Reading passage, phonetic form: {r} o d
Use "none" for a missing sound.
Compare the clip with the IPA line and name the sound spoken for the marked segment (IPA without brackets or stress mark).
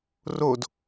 r